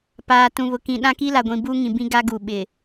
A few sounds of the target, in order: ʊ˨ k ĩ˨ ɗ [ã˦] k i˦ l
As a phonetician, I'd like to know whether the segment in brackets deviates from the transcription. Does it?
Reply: no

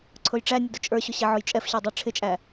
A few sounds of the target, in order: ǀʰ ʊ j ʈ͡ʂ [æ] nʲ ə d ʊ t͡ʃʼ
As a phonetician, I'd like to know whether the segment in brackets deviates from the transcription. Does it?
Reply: no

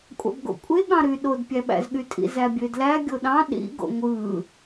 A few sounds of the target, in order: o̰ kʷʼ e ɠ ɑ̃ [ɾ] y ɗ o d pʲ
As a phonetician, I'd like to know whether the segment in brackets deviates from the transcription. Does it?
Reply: no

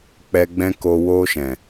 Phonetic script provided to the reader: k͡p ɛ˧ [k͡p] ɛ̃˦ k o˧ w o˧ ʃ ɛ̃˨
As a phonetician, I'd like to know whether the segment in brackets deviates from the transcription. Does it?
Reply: yes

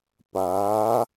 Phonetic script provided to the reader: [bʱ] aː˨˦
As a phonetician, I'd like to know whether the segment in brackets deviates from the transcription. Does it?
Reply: yes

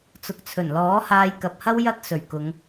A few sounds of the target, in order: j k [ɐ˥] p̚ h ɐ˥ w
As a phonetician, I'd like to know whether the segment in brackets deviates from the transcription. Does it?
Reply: yes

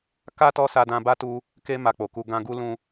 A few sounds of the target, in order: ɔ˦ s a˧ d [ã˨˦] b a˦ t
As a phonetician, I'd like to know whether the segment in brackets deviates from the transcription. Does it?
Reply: yes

